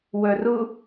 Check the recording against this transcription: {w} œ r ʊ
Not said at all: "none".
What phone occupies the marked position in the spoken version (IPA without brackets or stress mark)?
w